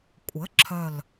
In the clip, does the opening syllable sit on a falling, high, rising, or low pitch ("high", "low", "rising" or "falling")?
rising